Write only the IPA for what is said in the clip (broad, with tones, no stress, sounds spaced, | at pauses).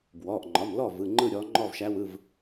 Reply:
b w ɔ˩˧˩ ʔ ŋ͡ǃ ɒ˩˧˩ m l ɔ˥˩ v ɯ˩˧˩ ŋ͡ǃ ɯ˥˩ ɾʲ ɔ˨˦ ŋ͡ǃ ɔ˥˩ v ʃ æ˨˦ w ɯ˩˧˩ v